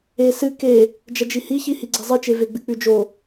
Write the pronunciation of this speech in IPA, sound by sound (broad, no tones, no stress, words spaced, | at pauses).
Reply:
e sɨ ke | d͡ʒɐd͡ʒihiçi hiɡ͡ǀezˤɨt͡ʃe veɡ͡bɨk͡pʉd͡ʒo